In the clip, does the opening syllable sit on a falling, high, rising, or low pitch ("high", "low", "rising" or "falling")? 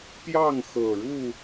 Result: falling